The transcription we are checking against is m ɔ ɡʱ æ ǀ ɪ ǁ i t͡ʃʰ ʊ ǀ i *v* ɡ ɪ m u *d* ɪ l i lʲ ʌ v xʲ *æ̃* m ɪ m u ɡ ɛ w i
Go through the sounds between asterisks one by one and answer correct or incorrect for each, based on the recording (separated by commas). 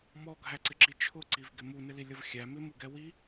correct, incorrect, incorrect